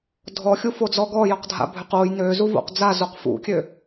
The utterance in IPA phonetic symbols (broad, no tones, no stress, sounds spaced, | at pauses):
dʱ ɔ xʲ u f o d͡z ɔ ɡ ɔ j ɔ q dʱ a̰ bʱ ʏ q o j n ø z u v o̰ q d͡z a z o q f ṵ kʲ ø